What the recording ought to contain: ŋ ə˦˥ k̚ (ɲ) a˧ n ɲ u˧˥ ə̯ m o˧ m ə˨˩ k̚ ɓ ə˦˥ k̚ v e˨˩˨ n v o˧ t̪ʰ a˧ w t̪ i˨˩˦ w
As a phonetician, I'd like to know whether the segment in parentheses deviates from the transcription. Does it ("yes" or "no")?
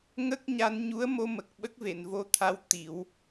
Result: no